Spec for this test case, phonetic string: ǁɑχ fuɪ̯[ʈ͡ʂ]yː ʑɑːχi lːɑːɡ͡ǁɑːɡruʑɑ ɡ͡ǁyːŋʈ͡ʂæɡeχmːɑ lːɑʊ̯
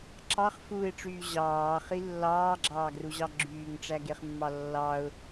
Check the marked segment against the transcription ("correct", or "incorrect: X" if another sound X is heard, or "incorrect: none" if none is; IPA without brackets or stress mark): correct